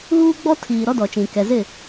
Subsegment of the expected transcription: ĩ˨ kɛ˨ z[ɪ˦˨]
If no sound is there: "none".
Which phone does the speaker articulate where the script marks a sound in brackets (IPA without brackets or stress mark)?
ɪ˦˨